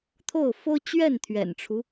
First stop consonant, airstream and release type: aspirated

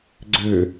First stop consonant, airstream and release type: click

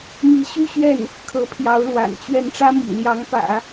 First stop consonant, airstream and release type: aspirated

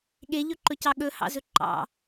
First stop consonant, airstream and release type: implosive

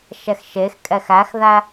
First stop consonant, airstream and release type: ejective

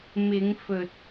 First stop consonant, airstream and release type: plain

